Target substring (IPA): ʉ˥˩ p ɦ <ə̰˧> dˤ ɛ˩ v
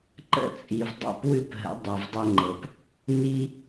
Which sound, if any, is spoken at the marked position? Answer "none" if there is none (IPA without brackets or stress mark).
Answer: ə̰˩˥